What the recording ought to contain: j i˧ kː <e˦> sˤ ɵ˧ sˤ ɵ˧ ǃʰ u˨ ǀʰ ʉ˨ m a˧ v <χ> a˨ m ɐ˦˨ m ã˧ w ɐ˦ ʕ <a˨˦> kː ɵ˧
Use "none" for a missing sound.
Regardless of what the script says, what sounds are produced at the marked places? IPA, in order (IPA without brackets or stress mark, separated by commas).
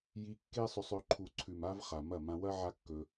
e˦, χ, a˦